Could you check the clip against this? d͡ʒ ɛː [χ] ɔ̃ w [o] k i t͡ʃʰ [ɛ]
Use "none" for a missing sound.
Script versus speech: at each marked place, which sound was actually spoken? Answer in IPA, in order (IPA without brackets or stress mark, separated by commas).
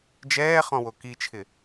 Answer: χ, o, ɪ